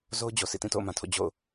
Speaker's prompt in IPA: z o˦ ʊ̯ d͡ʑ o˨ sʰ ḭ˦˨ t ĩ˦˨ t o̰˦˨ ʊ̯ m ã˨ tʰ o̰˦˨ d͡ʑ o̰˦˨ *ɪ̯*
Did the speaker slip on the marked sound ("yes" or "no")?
yes